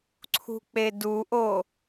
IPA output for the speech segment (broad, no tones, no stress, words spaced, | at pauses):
ǀʰṳk͡peduʔo